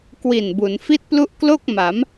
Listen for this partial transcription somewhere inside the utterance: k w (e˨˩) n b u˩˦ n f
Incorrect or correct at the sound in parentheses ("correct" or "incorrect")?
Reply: incorrect